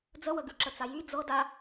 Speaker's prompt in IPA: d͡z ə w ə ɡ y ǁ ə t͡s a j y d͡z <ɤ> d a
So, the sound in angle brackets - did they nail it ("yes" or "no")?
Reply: yes